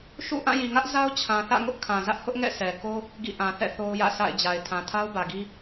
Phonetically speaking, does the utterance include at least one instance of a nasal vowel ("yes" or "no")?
yes